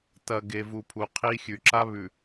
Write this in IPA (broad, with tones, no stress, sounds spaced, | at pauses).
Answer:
t ɐ˨ ɡ e˨ v u˨ pʰ u˨ qʰ i˦ xʲ ʉ˨ ǁ a˦ β ʉ˨